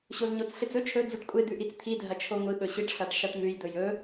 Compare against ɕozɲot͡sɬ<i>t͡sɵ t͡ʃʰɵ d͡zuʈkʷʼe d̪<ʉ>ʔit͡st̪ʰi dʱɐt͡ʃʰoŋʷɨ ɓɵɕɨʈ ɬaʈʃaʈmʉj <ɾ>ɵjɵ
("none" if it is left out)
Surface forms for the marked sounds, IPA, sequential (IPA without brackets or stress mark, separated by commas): ɨ, ʉ, d̪